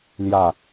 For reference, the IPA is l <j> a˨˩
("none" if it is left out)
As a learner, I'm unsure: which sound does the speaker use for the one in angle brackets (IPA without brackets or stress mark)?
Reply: j